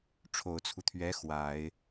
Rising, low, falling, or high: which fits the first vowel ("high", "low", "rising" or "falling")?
low